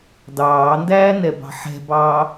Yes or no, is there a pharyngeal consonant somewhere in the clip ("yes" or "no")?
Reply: yes